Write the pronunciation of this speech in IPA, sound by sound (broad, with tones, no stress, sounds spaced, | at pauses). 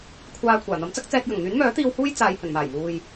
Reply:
kʷʰ aː˧ kʷʰ aː˨˩ n̪ ɐ˨˥ m t͡s ɐ˥ k̚ t͡s ɛː˧ k̚ j ɐ˨˩ ŋ n̪ yː˨˥ n m œː˨˥ t̪ iː˧ w h uː˥ j t͡s aː˨ j h ɵ˨˩ n m aː˨˩ j m uː˨ j